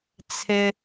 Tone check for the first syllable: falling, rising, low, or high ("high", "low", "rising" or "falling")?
high